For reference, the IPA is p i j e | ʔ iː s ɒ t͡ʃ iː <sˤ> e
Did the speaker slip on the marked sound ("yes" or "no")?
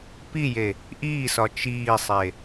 no